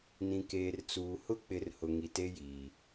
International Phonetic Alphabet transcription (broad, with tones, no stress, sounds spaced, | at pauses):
n ĩ˨ k eː˨ r t͡s uː˨ h ʊ˦ k͡p ɪ˨˦ r h ʊ˨ ŋ i˨ t e˦ j iː˨